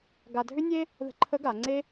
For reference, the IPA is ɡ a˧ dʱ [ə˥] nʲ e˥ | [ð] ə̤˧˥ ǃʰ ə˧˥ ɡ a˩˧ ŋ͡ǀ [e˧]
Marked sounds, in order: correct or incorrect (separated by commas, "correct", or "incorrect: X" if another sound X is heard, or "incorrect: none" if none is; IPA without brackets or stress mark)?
incorrect: ʏ˥, correct, incorrect: e˥